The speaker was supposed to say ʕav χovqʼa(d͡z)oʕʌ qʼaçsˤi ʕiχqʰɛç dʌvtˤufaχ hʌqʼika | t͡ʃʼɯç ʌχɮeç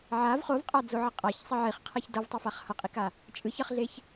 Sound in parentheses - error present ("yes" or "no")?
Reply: no